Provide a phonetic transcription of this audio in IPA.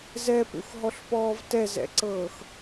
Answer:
z ɛ p ṵ x ɦ ɔ ɬ p ɔː v t ɛ z ɛ̰ ǀ ɤː x

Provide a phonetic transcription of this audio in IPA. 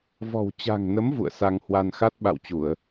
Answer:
v ɔ̤˨˩ w t͡ɕ a̤˨˩ ŋ n ə˨˦ m v ṵ˧˨ ə̯ s a˧ ŋ h w a˧ n x a˦˥ t̚ ɓ a̰˧˨ w t͡ɕ u˧˩˨ ə̯

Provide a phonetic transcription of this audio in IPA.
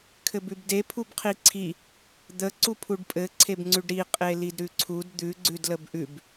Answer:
kʰ ɘ b ʉ b d e pʰ u b qʰ i ǀʰ i | d̪ ə ǀ u pʰ u ɖ pʼ ɘ ǀʰ e b ŋ͡ǀ ʉ ɖ ɾ i qʼ e l i d ɾ ʉ ǀʰ u d d̪ ʉ ɡ͡ǀ ʉ d l ə b ʔ ʉ b

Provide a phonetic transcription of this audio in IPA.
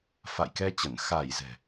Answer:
f a̰˧˨ j k ɛ˧ t͡ɕ ə˧˩ n x a˧˩ j z ɛ̤˨˩

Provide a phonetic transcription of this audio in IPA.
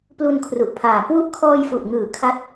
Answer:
p l u˧ n kʰ r u˨˩ ʔ pʰ aː˨˩ k w u˥˩ ʔ kʰ ɔː˧ j f u˨˩ ʔ ŋ ɯː˨˩ kʰ a˦˥ t̚

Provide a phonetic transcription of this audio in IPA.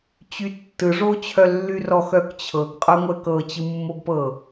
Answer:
t͡ɕ y tː ɯ ʐ o t͡ɕʰ œ lː y r ɔ x œ k t͡ɕʰ ɤ ɡ qʼ œ ŋʷ ɛ k ɤ t͡ɕ ɯ mː o ɡ p ɤ

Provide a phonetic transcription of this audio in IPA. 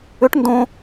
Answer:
ʏ ʈ n d õ

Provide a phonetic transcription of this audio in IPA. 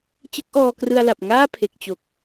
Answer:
t͡ɕ ɯ˦˥ k̚ ʔ ɔː˧ k r ɯ˧ a̯ l a˨˩ p̚ ŋ aː˥˩ pʰ e˨˩ k̚ t͡ɕ o˨˩ k̚

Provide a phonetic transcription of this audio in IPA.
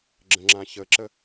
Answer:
ɡ͡ǁ ə̃ ŋ͡ǁ ã ç ə ǁ ə

